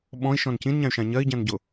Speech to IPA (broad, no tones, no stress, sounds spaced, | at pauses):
ɓ ɔ̃ i̯ ʃ ɔ̃ n c ĩ n ɲ ã y̯ ʃ ã ɲ ɜ i̯ ɟ ã n ɟ ʊ